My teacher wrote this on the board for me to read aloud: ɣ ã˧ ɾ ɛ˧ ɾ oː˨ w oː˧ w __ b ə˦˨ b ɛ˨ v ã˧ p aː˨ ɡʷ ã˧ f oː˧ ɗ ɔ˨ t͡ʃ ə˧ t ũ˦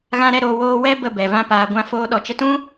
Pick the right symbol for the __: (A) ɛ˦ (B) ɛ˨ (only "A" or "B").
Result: A